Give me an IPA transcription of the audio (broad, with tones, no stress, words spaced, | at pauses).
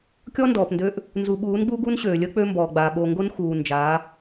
kʲɔ˦ndɔː˨pndøː˦ʔ | nzu˨ɓuː˨˦nɡ͡bu˦ɡu˦n ɕøː˨lʲəː˦ k͡pø˦mbɔː˨ɡ͡baː˨ ɓo˨ ŋɡo˦nxuː˨nd͡ʒa˨˦